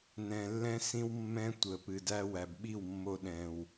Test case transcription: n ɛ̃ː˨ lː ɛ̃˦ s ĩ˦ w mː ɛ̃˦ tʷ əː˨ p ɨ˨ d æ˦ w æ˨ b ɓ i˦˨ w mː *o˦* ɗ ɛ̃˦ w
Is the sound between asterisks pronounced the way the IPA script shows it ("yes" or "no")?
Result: yes